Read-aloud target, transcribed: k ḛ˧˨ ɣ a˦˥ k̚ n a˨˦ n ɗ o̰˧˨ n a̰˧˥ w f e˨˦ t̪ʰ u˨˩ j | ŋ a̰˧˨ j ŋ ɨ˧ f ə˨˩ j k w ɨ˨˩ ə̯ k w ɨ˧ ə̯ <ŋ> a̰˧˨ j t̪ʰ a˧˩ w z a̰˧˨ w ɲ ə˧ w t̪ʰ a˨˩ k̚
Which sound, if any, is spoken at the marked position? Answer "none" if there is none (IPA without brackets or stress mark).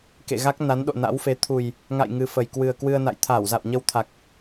n